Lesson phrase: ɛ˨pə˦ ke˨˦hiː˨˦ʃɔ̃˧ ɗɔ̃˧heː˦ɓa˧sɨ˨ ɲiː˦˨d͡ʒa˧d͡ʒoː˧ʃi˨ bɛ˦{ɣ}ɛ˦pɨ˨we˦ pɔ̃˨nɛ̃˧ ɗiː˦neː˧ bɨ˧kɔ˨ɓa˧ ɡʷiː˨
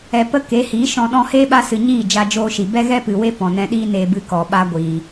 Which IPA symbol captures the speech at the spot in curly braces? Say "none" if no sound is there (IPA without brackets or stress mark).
ɣ